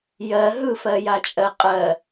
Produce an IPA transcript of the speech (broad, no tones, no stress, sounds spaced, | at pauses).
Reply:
j ɜ ɦ ɯ f ɜ j a t͡ʃʼ ɜ qʼ ɜ